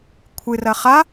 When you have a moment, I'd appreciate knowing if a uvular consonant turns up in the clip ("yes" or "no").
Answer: yes